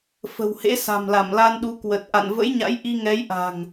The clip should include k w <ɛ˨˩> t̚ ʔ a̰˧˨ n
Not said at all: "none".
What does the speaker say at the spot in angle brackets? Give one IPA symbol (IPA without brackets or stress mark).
ə˨˩